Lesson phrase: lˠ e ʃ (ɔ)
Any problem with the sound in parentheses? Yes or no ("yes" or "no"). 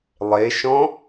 yes